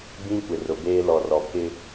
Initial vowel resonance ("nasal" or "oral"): nasal